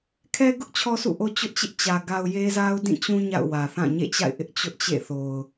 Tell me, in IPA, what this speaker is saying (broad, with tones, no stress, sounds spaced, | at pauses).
kʰ ɛ˦ ɡ ʊ˦ ʔ t͡ɕʰ ɔ˦ s ṵ˦˨ ʔ o˦ t͡ɕ ʊ˦ ʔ t͡ɕ ɪ˦ ʔ t͡ɕ ä˨ ɡ a˨ ʊ̯ j e˦ z a˦ ʊ̯ d ĩ˦˨ t͡ɕ ũ˦ ɲ a̰˦˨ ʊ̯ w ä˨ θ ã˦˨ ɲ ḛ˦˨ t͡ɕ a̰˦˨ ɪ̯ ʔ ɪ˦ ʔ t͡ɕ ʊ˦ ʔ t͡ɕ ḛ˦˨ θ o˨ ʊ̯